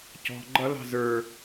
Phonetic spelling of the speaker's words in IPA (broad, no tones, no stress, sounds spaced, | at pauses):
c ɔ̤ ɡ͡ǃ ʌ l ɑ̤ z ə˞